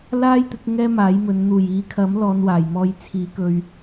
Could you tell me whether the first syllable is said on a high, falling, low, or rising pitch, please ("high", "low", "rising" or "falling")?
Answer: high